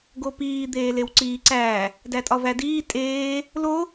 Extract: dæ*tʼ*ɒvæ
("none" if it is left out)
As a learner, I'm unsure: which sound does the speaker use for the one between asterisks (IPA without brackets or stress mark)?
tʼ